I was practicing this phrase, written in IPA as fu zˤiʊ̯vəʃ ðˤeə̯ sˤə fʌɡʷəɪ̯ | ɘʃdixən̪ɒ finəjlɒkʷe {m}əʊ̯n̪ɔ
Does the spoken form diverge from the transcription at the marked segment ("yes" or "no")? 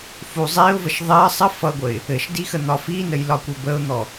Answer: yes